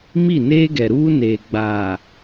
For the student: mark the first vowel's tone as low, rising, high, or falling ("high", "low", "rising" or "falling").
falling